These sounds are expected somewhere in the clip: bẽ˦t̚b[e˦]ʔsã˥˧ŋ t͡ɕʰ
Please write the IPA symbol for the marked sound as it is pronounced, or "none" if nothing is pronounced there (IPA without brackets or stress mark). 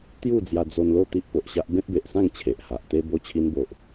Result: e˨